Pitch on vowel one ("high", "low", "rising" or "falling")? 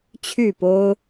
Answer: falling